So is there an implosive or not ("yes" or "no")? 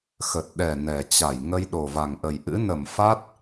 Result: yes